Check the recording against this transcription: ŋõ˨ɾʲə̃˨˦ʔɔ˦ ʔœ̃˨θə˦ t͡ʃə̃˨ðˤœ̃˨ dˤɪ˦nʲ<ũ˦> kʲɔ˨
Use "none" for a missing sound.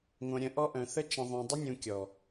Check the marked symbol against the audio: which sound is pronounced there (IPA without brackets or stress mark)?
ũ˨